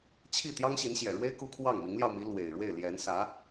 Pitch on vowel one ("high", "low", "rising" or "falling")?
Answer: falling